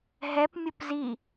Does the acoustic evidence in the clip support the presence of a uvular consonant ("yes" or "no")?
no